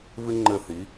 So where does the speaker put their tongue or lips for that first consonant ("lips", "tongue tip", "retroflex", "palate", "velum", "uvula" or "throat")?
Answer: lips